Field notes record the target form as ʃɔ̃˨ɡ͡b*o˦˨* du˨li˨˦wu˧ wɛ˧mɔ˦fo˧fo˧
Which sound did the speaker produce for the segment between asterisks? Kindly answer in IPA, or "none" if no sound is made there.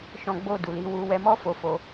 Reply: o˨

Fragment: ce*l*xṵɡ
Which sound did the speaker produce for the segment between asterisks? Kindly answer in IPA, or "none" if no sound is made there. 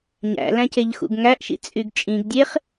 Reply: ʎ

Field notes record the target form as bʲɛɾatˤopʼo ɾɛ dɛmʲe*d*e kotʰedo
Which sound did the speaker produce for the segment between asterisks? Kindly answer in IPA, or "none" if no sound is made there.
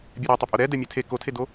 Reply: tʰ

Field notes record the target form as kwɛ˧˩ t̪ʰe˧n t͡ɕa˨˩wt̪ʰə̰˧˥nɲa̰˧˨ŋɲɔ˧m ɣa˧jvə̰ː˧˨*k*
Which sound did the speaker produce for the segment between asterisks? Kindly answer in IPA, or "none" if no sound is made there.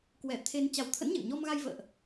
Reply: ʔ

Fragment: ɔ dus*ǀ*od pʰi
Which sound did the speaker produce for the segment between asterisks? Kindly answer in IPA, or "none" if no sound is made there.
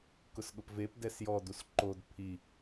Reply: ǃ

